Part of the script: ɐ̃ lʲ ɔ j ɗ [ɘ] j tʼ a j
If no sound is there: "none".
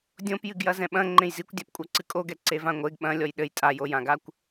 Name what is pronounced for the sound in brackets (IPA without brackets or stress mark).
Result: ɘ